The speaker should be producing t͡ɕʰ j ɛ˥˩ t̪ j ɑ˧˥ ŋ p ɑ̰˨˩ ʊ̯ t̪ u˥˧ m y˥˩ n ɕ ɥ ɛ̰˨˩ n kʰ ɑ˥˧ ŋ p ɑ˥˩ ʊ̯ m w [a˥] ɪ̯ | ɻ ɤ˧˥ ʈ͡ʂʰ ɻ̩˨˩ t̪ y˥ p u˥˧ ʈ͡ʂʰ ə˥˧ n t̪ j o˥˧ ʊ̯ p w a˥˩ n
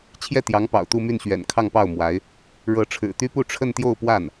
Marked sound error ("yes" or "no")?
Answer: yes